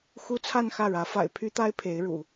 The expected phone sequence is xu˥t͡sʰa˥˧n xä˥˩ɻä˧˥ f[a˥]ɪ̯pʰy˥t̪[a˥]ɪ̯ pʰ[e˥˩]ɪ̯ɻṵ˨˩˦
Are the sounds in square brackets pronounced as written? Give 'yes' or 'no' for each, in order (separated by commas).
no, yes, no